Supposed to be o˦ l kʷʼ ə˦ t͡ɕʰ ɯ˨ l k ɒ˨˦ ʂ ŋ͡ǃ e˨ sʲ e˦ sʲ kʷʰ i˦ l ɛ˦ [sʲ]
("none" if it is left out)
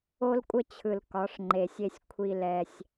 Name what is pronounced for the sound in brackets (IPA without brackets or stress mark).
sʲ